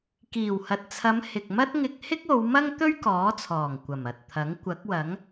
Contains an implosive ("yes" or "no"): no